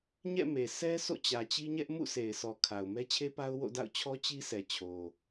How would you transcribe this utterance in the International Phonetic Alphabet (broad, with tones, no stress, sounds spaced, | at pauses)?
ɲ ɛ̰˦˨ m e˨ s ɛ˦ s o̰˦˨ t͡ɕ ä˨ t͡ɕ i˦ ɲ ɛ˦ ʔ m ṵ˦˨ sʰ e˨ ɪ̯ s ɔ˨ kʰ a˨ ʊ̯ m ɛ˦ t͡ɕʰ e˦ p a˦ ʊ̯ w o̰˦˨ d a̰˦˨ ʊ̯ t͡ɕʰ ɔ˦ t͡ɕ i˦ s ɛ˨ t͡ɕʰ o˨